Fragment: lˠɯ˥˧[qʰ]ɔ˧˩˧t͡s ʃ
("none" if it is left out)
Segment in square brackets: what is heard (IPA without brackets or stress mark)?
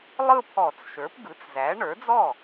pʰ